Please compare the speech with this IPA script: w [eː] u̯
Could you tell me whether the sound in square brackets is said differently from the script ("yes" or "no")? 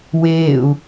no